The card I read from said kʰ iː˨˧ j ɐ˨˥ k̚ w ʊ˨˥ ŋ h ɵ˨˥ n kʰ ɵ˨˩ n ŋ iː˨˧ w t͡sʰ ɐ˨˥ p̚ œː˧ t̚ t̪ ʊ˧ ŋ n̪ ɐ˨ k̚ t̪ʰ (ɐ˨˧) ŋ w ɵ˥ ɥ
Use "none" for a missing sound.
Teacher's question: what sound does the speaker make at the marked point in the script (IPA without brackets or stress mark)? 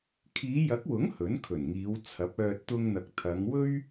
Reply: ɐ˨˧